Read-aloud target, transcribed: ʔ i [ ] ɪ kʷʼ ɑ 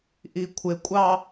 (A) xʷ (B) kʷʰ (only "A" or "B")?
B